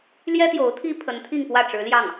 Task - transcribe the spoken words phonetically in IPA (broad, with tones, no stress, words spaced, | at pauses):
ljɛ˥ t̪jo˧˥ʊ̯t̪ʰi˥ pʰə˧˥nt̪ʰi˥˧ŋpwä˥˩ ʈ͡ʂɻ̩˧˥ljɑ˥˩ŋ